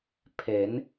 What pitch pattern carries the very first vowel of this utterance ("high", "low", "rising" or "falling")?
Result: rising